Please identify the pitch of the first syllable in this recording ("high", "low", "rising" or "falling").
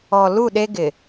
low